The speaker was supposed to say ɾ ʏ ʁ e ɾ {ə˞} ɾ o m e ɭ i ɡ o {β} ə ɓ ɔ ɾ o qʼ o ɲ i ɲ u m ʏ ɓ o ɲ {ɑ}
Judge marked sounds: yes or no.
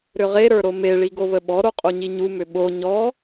yes, yes, no

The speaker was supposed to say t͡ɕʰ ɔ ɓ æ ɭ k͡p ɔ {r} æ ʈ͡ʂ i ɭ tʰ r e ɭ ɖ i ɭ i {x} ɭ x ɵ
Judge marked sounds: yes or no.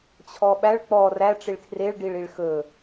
yes, no

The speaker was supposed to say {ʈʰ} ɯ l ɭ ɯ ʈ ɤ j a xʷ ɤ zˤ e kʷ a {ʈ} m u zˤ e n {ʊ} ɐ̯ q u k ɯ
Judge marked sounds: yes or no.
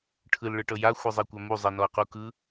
yes, no, no

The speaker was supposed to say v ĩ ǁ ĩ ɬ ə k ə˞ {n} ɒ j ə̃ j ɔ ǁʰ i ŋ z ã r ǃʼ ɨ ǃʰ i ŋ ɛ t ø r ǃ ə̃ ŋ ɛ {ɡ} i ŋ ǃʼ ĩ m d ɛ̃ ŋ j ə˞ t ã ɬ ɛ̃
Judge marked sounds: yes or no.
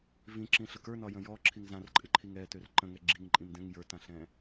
yes, no

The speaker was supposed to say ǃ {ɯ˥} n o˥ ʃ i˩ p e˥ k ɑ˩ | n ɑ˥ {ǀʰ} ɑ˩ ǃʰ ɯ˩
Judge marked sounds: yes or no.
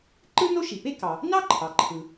yes, no

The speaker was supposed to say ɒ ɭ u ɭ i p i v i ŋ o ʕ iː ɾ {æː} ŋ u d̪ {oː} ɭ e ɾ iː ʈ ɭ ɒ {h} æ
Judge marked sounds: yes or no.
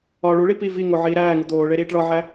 yes, yes, no

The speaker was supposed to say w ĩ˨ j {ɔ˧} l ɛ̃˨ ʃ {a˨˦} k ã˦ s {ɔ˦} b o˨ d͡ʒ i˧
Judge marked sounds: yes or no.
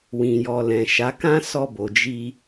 no, yes, no

